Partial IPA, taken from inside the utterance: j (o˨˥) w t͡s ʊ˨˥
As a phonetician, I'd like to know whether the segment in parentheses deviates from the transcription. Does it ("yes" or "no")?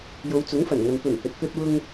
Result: yes